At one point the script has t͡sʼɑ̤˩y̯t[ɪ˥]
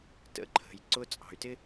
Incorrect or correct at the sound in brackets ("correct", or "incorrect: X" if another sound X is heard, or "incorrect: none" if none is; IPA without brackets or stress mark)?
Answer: correct